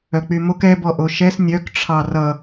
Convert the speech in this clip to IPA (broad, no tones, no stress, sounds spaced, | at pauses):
œ k͡p y m o k ɛ b ɔ ʔ o ʃ ɛ s nʲ œ k ʈ͡ʂʰ ɑ r ʌ